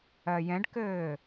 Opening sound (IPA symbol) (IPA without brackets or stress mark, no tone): ɜ